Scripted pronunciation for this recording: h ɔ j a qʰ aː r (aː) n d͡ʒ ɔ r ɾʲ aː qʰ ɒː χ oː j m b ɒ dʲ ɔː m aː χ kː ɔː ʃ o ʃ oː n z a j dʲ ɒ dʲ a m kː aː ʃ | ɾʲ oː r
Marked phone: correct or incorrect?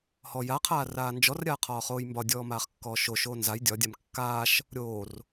correct